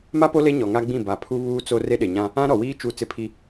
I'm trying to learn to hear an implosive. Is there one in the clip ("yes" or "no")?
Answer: yes